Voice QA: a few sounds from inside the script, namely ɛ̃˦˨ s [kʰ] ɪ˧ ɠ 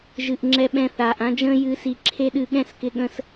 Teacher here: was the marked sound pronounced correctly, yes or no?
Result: no